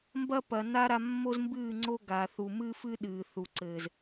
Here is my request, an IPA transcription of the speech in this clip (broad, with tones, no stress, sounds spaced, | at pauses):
m b ɐ˦ p ɐ˨ n a˦ ɾ a˧ mː o˦ z m b ɨː˦˨ ŋ͡ǀ o˦ ɡ a˨ θ u˨ m ɨː˦ f ɨ˦ ɗ ɨː˨ θ u˨ ǀ ɘː˨ z